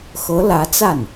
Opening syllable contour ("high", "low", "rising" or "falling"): rising